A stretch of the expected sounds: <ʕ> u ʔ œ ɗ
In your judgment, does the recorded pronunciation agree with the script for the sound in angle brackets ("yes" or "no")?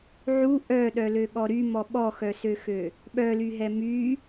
yes